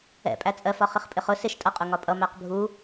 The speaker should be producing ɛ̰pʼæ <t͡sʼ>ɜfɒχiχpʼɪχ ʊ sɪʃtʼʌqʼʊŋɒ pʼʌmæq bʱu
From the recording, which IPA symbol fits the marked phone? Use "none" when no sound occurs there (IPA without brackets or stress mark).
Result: t͡sʼ